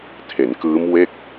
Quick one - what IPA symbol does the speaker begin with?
tʰ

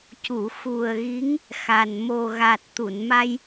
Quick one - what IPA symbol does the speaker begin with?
c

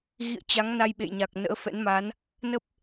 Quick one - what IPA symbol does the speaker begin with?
ɣ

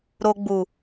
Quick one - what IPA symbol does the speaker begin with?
ɾ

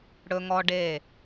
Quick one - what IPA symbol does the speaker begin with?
ɽ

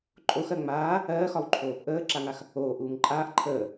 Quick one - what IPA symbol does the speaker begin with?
ǃʼ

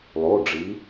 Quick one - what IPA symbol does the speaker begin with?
lˠ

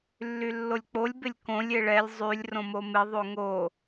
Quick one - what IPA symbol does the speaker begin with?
lː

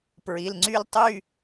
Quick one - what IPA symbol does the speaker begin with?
p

